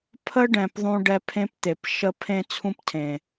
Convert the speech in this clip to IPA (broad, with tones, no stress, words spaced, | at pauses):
pʰə˦ ɖɛ̃˨pðˤũ˧ ɖɛ˧pʰẽ˦pt̪e˨p ʃə˧ pʰẽ˦t͡sʰũ˦ptʰẽ˨